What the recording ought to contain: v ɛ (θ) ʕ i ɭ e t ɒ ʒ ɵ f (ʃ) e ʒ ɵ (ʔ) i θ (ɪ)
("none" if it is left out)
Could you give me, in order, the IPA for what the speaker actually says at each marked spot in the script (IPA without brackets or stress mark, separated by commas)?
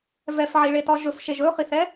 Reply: f, ʃ, χ, ɛ